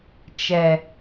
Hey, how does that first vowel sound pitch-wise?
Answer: low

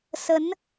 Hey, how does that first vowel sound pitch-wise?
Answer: rising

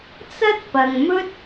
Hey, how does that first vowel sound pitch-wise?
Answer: high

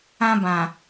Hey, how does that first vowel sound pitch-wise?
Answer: high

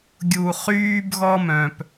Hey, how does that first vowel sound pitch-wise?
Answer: low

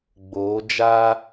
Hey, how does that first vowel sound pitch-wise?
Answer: rising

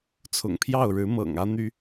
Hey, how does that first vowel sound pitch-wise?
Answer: low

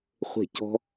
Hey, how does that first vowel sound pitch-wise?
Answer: falling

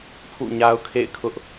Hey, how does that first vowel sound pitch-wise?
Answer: falling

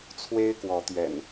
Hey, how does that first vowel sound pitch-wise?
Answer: high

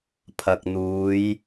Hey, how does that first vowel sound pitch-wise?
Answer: low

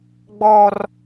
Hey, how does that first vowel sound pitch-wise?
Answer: high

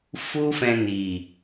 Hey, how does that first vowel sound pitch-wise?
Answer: high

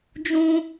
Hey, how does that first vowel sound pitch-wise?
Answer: high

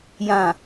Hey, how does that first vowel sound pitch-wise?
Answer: low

